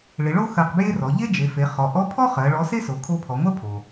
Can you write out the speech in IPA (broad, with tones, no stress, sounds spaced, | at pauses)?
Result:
ɭ ɪ˩˧ ɭ o˥ x ɜ˧ q b j e˥ r ɔ˩˧ ʎ e˥ d͡ʒ e˩˧ f e˩˧ χ ɔ˩˧ ʔ ɔ˧˥ pʰ ɔ˥ χ ɜ˩˧ ɭ ɔ˧˥ s e˥ s o˩˧ kʰ o˧˥ pʰ ɔ˩˧ ŋʷ ɜ˥ pʰ o˩